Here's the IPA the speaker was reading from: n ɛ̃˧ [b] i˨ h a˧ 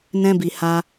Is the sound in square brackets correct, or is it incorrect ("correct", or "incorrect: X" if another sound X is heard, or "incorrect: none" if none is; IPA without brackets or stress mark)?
correct